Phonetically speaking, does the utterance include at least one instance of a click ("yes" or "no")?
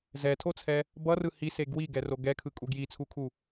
no